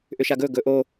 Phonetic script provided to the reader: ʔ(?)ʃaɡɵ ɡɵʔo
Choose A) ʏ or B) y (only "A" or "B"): A